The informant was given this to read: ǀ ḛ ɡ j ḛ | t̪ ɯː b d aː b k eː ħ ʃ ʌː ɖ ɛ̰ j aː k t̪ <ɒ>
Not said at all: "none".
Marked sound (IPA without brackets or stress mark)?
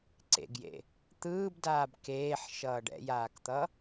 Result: ʌ